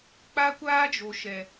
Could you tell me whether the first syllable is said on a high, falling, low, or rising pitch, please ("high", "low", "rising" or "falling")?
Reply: high